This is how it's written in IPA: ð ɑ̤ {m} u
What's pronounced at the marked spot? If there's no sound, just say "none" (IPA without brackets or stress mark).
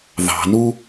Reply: n